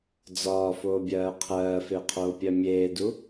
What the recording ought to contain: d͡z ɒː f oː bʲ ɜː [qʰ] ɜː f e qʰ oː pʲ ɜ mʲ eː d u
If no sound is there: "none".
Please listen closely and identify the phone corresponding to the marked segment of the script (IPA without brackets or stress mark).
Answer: qʰ